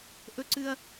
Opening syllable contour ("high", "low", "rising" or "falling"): high